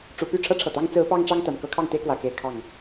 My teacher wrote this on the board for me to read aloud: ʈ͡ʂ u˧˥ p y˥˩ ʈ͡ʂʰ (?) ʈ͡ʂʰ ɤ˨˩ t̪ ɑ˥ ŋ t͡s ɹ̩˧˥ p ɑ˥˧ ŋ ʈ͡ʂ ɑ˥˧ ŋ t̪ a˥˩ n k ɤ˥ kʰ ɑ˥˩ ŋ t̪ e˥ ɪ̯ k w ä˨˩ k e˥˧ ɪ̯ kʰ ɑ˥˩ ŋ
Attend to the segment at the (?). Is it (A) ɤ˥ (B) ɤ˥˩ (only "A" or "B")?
A